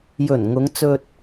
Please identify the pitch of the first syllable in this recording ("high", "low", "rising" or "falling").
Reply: low